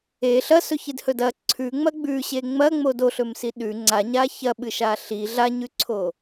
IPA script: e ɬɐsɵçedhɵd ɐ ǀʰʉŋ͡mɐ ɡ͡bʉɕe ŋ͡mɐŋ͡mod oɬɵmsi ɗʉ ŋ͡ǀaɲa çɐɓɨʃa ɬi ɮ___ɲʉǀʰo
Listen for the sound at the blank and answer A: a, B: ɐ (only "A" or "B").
A